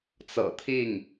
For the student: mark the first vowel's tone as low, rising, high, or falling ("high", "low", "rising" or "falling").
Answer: low